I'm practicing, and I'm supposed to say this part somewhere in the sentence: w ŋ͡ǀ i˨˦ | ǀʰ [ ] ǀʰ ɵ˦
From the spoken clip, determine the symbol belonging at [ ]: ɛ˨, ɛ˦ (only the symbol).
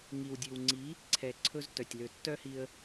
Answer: ɛ˨